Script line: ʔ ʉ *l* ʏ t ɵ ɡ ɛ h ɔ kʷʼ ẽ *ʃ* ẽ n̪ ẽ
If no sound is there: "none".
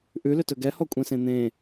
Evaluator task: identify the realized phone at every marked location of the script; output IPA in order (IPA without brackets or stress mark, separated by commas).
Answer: l, s